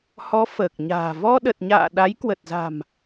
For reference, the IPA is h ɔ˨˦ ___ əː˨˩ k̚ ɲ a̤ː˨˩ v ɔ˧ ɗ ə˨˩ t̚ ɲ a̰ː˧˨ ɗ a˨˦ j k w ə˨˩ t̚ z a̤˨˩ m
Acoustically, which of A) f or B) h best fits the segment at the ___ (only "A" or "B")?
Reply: A